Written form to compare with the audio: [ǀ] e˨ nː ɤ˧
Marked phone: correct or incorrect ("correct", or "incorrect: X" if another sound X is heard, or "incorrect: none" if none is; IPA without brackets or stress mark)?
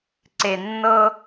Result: correct